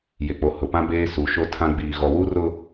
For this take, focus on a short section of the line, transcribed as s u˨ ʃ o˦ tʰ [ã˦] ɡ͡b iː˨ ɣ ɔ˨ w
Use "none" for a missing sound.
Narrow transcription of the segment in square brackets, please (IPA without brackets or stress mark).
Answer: ã˦